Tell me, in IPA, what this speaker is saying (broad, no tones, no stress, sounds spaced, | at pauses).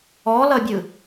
ɔ l ʌ bʲ ɯ